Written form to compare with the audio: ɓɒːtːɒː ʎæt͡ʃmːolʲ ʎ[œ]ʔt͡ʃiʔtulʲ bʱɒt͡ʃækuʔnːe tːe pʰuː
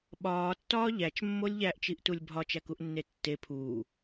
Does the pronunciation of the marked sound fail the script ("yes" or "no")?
yes